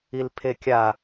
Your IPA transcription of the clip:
i l pʰ e kʲ a

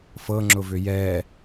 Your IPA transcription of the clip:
f ɤ ŋ͡ǁ ʊ v ʏ j ɛ

